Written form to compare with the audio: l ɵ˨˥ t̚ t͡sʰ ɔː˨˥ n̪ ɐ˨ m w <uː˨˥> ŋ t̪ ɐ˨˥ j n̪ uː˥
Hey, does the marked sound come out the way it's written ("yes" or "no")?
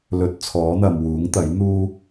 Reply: yes